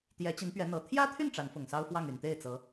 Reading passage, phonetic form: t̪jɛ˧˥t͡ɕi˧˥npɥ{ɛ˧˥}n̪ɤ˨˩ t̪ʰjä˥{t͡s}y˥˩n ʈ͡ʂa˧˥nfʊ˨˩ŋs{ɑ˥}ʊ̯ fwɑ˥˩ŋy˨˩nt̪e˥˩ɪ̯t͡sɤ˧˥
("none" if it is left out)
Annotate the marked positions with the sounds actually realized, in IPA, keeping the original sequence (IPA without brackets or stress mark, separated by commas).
ɛ˧˥, t̪ʰ, ɑ˥